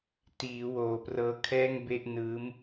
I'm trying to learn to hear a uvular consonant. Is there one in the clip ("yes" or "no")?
no